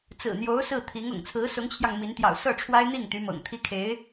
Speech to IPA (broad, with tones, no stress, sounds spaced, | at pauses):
t͡s ɹ̩˨˩ n̪ j o˧˥ ʊ̯ s ɹ̩˥˩ t̪ʰ i˧˥ ŋ ʊ̰˨˩ ŋ t͡sʰ ɹ̩˧˥ s ʊ˧˥ ŋ t͡ɕʰ j ɑ˧ ŋ m i˧˥ n t̪ j ɑ̰˨˩ ʊ̯ s ɤ˥˩ ʈ͡ʂʰ w a˥ ɪ̯ n̪ i˥˩ ŋ t̪ y˧˥ m ɤ̰˨˩ ŋ t̪ʰ i˥ kʰ e˧˥ ɪ̯